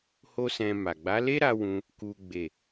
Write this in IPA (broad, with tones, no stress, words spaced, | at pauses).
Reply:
ho˦sɛ̃˧ma˨ ɡ͡ba˨˦le˦ɾa˧ wũ˦ | ku˦ɡ͡be˦˨